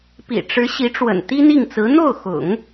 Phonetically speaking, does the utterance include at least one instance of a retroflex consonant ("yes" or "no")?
yes